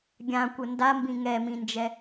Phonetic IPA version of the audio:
ɡʲ ã kʷ ə n d a m b ĩ ŋ ɛ m ĩ n d͡ʒ ɛ

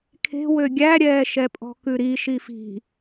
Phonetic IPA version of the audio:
kʰ e̤ w ø ɡʲ æ ɾʲ ɛː ʃ ɛ pʼ ɔ̤ k ʉ ɾ i ʃ i f i̤

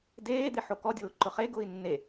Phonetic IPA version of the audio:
d eː d̪ e ħ o k ɔ dʲ ʊː ǃ ʊ χ e ɡ ʊː i̯ nː e

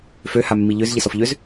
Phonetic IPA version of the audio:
f ø h a mː i ʎ ø z ʎ ɪ s ɔ f ʎ ø z

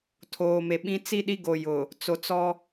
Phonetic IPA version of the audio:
tʰ oː˨ m e˨ ɓ ĩ˦ t͡s i˦ ɗ i˦ ɡ o˨ j ʊ˨ | t͡s o˨ t͡s ɔ˦

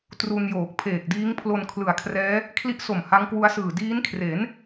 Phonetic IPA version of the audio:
t r u˧ n j oː˨˩ k̚ pʰ eː˨˩ k̚ d iː˦˥ ŋ pʰ l o˧ n kʰ l ɯ˨˩ a̯ kʰ r ɛː˦˥ | kʰ l i˦˥ ʔ s o˨˩ m h a˦˥ ŋ k w u˦˥ a̯ s ɯː˨˩ d iː˦˥ n kʰ r e˩˦ n

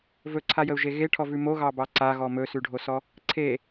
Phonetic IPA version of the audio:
v ɵ ǀʰ a j ə u̯ ʒ e ɣ e ʈʰ ɔ v ʉ m o ɣ ɑ b ɑ ǀ a ɣ ɔ m ɵ s ʉ ɖʱ o s ɔ | ǀʰ e

